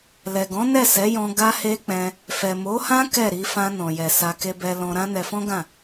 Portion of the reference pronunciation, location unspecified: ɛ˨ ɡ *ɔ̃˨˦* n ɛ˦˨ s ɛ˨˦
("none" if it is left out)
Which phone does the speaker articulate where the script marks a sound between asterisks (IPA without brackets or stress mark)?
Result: ɔ̃˨˦